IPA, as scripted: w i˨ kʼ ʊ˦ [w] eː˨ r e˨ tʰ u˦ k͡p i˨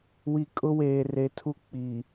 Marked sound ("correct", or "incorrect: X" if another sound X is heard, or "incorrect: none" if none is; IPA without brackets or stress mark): correct